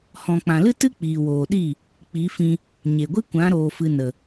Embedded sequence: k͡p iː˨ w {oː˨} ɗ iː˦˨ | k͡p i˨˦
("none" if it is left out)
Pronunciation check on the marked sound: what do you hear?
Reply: oː˨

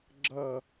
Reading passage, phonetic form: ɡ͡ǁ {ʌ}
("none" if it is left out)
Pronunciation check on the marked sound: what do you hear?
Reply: ʌ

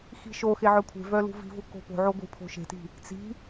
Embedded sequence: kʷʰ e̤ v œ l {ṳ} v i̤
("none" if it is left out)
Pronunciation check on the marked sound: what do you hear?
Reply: ṳ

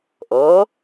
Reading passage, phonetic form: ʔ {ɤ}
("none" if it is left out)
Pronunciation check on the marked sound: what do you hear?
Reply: ɤ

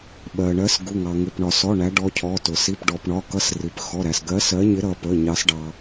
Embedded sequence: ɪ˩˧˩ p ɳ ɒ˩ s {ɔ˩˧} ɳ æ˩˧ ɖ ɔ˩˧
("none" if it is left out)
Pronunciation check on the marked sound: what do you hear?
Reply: ɔ˩˧˩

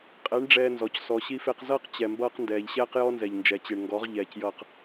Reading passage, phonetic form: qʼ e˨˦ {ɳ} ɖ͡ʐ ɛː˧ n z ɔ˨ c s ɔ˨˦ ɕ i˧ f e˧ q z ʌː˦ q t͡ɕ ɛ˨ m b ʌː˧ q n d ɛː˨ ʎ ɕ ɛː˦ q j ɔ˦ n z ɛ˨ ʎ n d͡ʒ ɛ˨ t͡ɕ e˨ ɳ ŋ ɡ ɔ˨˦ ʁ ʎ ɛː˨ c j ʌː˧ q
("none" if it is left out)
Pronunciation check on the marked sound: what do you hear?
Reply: ɳ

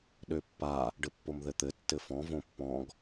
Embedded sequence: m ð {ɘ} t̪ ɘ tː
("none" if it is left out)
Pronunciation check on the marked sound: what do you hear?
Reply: ɘ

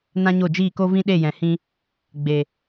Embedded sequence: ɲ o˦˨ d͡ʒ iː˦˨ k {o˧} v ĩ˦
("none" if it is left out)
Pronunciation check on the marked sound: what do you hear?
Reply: o˦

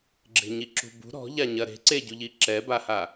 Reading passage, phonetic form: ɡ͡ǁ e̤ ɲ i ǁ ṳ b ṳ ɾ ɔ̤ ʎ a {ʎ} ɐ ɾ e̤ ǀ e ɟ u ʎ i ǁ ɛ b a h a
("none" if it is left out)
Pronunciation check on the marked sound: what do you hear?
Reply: ɲ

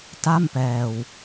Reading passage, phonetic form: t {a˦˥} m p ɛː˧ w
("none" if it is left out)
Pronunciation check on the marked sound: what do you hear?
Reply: a˥˩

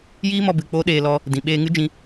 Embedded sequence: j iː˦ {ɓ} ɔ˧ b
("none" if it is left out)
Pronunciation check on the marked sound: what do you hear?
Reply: m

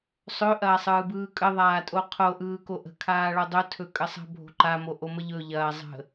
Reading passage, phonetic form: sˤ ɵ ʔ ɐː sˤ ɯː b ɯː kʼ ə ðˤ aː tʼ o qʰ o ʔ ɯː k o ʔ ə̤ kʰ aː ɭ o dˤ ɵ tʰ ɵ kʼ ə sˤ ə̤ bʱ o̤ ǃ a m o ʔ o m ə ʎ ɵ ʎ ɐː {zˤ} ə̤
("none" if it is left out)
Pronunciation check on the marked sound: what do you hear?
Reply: zˤ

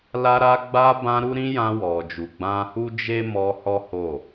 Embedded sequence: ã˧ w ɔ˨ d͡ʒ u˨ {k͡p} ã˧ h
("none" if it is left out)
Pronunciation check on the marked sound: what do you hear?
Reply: ɡ͡b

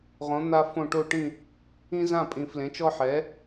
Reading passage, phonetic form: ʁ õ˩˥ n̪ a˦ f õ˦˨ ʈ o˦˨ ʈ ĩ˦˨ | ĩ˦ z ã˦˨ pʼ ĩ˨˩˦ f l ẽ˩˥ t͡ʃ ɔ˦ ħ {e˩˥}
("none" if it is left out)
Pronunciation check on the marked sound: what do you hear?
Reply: ɛ˩˥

